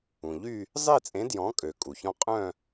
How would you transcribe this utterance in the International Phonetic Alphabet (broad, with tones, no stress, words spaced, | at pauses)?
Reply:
ũ˩ ʎy˥˧ | zˤe˥˧t͡sʼẽ˨˥ djɔ̃˨˥kʼø˩ kʼu˩çɔ̃˥˧ qʼœ̃˥˧